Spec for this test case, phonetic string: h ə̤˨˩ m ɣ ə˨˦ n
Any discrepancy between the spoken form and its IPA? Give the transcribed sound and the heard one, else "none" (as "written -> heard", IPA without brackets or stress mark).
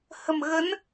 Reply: none